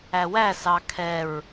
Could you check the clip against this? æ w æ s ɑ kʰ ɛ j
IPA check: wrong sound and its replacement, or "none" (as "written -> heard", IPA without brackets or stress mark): j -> ɹ